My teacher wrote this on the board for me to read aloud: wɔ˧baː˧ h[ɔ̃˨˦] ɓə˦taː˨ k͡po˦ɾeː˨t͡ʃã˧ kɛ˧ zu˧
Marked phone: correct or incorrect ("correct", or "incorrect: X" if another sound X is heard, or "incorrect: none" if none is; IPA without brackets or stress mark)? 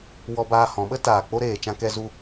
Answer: correct